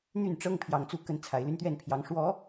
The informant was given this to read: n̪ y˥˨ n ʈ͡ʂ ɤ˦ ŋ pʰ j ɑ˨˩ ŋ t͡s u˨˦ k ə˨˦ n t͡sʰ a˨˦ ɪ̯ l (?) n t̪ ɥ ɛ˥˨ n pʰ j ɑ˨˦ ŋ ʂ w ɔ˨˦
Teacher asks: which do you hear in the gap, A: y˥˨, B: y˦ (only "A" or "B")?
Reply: B